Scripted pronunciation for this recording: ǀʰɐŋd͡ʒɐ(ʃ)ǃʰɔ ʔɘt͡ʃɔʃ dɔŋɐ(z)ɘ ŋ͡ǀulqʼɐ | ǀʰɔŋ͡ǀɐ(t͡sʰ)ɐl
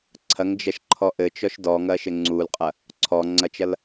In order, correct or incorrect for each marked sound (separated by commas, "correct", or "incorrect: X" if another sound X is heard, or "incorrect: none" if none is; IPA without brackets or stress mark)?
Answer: correct, incorrect: ʃ, incorrect: t͡ʃ